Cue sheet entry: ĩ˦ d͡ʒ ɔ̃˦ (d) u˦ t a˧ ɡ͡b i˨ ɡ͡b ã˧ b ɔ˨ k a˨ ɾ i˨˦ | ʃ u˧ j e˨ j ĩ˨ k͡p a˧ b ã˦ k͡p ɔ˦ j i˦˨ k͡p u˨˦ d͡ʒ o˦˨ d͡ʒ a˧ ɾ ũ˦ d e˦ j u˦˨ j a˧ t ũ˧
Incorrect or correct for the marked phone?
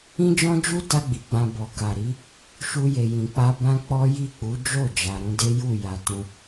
incorrect: d͡ʒ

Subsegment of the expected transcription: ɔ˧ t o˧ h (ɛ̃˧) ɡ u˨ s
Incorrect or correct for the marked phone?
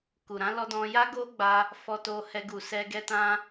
incorrect: ɛ˧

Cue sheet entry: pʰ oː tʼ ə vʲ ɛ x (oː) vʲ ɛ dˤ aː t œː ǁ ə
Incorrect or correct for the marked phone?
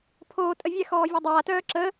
incorrect: ɔː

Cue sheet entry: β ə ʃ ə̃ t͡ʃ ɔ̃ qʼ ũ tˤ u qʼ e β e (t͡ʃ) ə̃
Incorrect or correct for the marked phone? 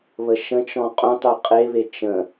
correct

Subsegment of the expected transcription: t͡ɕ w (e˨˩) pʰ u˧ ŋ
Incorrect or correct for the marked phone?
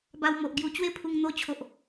incorrect: e˥˧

